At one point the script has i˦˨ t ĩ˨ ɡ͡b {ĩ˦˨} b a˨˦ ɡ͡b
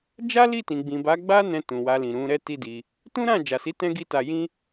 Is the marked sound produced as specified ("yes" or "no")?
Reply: no